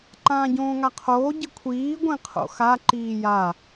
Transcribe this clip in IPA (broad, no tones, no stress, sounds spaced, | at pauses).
ǃ ãː ɟ õː ŋ a qʰ oː ɟ ɨ kʷʰ iː ɡʷ ĩ qʰ o̰ x a ǃ iː j a